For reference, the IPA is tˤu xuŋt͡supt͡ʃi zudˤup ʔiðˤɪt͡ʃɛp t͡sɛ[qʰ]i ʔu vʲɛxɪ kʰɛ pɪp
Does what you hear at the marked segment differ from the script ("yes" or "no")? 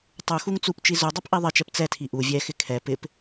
yes